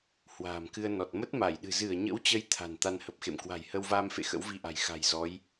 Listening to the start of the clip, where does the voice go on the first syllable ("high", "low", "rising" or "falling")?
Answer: low